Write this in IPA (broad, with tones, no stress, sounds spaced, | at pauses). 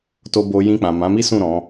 t o˧ b o˧ j ĩ˧ k͡p ã˨ m ã˨˦ m i˦ s ũ˦˨ ɾ ɔ̃˨˦